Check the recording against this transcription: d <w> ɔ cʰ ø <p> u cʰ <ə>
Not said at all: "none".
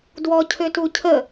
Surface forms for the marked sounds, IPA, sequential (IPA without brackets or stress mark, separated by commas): w, t, ə